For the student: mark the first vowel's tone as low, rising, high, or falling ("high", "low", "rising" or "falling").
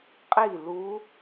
falling